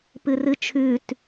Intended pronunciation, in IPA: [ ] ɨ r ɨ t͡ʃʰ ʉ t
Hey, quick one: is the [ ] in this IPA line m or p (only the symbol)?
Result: p